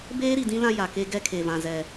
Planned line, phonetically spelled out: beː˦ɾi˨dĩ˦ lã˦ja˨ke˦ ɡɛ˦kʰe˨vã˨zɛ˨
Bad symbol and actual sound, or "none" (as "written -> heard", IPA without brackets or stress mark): none